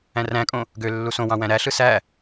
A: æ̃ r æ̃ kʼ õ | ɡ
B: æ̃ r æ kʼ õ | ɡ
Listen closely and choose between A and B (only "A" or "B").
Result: A